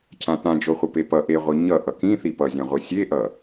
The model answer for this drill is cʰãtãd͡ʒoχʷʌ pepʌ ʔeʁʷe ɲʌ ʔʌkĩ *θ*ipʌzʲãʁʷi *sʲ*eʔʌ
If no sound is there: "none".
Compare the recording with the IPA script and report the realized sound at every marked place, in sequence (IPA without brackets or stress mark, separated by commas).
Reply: θ, sʲ